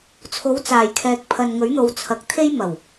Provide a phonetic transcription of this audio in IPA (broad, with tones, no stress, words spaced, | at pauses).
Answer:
t͡sʰo˨˥wt͡saː˨˩jkʰɛː˨k̚ pʰɐ˨nŋɵ˨˥ɥ n̪o˨wt͡sʰɐ˨k̚t̪ʰe˥j mɐ˨˩w